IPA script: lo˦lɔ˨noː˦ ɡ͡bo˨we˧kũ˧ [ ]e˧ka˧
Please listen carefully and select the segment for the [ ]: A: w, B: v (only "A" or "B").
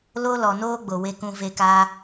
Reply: B